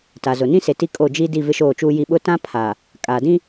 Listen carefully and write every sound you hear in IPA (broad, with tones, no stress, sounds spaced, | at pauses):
t a˨ z ʊ˨ n ĩ˦ s e˨ t i˦ kʼ o˦˨ d͡ʒ i˦ d i˦˨ v ɪ˦ ʃ oː˦˨ t͡ʃ uː˦ j i˦ ɓ ʊ˦ t ã˦ pʰ a˨ | kʼ aː˨ d ĩ˦